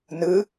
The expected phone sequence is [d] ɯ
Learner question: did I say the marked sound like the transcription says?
no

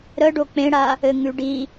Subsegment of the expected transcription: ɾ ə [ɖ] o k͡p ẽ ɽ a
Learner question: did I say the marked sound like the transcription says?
yes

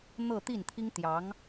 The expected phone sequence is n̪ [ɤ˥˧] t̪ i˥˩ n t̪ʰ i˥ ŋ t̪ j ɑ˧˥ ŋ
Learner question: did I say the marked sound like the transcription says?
yes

